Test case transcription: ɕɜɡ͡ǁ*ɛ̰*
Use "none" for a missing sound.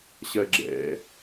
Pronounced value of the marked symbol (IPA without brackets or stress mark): ɛ̰